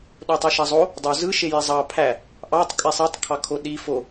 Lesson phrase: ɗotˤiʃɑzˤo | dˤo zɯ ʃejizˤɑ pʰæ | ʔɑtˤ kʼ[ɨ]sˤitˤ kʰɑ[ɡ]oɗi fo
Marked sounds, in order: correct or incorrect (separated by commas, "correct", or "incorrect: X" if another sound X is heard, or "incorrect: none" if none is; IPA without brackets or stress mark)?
incorrect: e, incorrect: kʰ